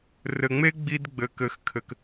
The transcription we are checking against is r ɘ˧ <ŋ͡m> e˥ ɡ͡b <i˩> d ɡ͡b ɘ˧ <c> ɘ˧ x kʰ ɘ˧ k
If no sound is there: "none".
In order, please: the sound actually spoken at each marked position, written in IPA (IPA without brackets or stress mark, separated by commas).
ŋ͡m, i˥, k